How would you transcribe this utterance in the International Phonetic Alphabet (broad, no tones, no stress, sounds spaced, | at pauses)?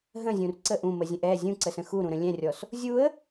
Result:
ɦ ə̃ zʲ ũ r ǀ ə ʔ ũ m ə zʲ ə̃ ʔ ɛ zʲ ũ ǀ ə s ə̃ x u ɾ ũ ɾ ə̃ lʲ ɛ̃ rʲ ɔ s | zʲ u ə̯